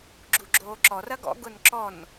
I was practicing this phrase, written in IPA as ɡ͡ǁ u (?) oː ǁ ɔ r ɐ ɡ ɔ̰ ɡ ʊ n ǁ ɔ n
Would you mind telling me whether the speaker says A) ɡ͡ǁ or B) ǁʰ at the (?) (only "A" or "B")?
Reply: A